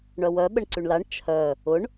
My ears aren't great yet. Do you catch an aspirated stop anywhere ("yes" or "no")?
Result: yes